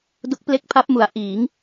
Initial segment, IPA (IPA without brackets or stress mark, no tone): d